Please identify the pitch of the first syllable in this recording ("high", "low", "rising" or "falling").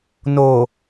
low